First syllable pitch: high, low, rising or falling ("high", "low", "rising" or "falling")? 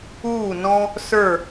falling